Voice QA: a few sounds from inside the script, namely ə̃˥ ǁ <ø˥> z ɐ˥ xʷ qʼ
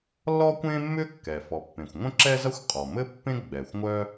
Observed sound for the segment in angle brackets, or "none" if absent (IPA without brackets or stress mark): ɛ˥